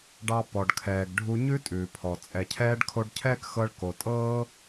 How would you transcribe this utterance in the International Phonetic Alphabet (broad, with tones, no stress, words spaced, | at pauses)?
ɖɑ˧ pɔ˩ɖkʰɛː˩ɡ ɖʱu˧ ɲʉ˥tʼʉː˩pʰɔ˩ t͡sʼɛ˩cʰɛː˧ɖ kʰo˧ɖcʰɛː˥kxɤ˧ɭ ko˩tʼɤː˥